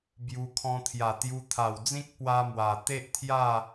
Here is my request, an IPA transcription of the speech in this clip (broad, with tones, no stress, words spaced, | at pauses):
bju˧kʰɔ̃˧ t̪ʰja˨˩t̪ju˧t̪ʰa˨˩wd͡zĩ˦k̚ pwa˦mwa˨˩ t̪e˦ʔt̪ʰja˥˧